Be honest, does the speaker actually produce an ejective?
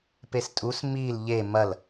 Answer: yes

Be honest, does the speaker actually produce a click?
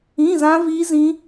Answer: no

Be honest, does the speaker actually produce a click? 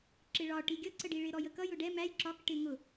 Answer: yes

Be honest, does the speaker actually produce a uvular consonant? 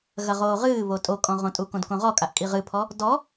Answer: yes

